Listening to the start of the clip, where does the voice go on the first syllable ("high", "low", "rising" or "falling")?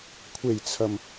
low